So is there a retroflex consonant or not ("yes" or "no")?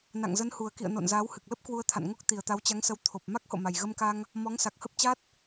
no